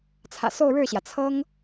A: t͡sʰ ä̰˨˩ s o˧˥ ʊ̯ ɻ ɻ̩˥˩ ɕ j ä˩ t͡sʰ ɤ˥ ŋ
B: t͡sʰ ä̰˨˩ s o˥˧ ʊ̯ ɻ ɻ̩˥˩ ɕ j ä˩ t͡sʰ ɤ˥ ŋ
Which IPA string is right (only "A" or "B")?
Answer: B